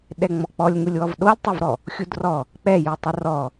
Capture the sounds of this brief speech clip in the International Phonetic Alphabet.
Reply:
ɗ ɛ ŋ͡m ɔ k͡p ɔ lʲ ŋ u lʲ w ɔ v ɗ o lʲ tˤ œ v ɾ ɔ | xʲ u d r ɔ | k͡p ɛ j u tˤ ə r ɔ

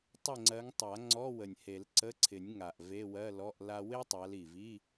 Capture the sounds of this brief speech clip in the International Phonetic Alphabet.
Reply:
tˤ ɪ˦˨ ŋ͡ǀ ɜ˨˦ ŋ tˤ a˨˩˦ ŋ͡ǀ ɔ˧˥˧ w ə˨˩ nʲ h e˨˩˦ l ǀ ə˧˥˧ ǀʰ ɪ˨˩˦ nʲ ŋ a˨˩ ʔ v e˧˥˧ w ɜ˧˥˧ l ɔ˧˥˧ ʔ l a˥ w e˥ tˤ a˨˦ l i˨˩ v i˧˥˧

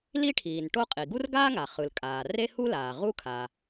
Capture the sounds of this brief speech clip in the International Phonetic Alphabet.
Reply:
l i˥ ʈʰ iː˩ n ʈ o˥ qʼ i˩ ɡ u˥ r ɡ aː˥ ŋ a˩ χ ɯ˩ l kʼ aː˩ r e˥ h u˥ l aː˩ ʁ u˥ kʰ a˩

